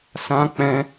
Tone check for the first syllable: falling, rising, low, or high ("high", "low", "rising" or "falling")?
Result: high